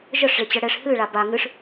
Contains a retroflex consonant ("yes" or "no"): yes